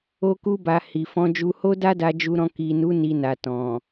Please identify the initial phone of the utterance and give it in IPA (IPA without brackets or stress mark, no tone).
o